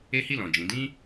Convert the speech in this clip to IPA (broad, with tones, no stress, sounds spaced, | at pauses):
e˦ h i˦˨ l ɔ̃˨ d͡ʒ ĩ˨˦ d ĩ˦